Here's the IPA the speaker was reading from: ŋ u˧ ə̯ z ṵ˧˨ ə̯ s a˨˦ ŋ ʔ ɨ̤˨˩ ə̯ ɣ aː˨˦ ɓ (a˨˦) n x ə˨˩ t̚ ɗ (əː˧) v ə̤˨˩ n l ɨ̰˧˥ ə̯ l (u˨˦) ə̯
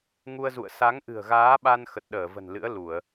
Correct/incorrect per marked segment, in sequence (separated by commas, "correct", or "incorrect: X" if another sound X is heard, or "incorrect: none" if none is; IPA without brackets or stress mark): incorrect: a˧, incorrect: əː˧˩, incorrect: u˧˩˨